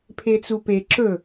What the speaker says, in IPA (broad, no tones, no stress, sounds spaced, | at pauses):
pʰ e t͡s u p e ǁ ɵ